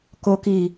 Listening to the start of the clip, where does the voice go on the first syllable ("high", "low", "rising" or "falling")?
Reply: low